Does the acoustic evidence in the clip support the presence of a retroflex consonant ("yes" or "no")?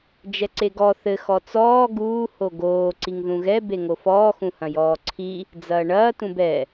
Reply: yes